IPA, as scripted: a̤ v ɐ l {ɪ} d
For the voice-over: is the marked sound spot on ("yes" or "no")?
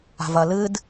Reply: no